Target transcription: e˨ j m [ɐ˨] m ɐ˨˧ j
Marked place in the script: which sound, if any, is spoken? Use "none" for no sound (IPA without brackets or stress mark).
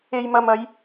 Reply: ɐ˨